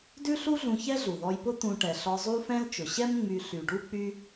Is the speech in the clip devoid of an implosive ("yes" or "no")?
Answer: yes